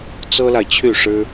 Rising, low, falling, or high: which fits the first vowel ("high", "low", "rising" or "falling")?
high